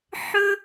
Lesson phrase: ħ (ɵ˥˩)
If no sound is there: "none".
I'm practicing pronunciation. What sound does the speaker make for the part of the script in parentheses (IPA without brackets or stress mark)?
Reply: ɵ˥